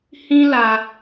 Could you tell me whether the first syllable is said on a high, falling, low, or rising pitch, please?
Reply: high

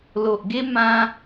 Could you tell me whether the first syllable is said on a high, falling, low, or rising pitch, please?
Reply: low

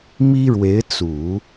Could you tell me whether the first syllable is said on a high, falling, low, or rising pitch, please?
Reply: high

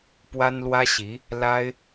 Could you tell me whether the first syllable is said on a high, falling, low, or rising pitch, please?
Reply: high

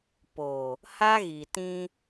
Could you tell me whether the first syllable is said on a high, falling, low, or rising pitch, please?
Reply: low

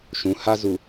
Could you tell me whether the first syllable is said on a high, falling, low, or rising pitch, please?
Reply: rising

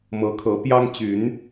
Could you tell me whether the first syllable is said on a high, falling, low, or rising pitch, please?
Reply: rising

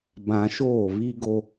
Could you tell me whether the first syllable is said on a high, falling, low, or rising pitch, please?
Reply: low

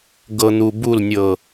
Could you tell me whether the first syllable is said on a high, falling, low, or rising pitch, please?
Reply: low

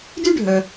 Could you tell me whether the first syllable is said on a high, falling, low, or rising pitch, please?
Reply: high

